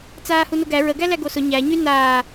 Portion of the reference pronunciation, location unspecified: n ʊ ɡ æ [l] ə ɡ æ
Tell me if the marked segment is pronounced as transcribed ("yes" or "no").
no